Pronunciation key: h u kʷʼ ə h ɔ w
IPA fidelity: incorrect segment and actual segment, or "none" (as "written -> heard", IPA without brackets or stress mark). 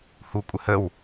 ɔ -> ə